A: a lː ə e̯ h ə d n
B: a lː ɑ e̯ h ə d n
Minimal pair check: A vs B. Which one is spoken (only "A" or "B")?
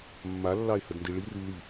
B